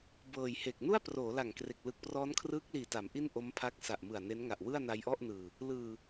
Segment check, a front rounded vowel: absent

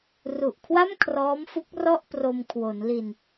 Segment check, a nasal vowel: absent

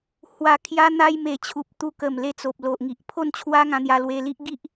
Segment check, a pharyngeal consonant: absent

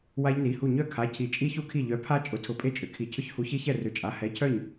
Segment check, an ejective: present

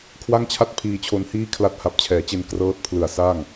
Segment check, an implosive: absent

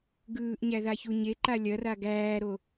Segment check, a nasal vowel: absent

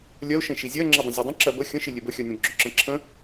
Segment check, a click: present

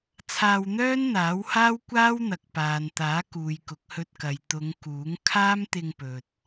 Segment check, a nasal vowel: absent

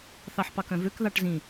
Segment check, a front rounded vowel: present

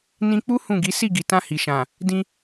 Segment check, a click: absent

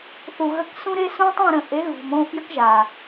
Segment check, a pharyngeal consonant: absent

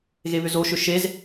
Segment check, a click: absent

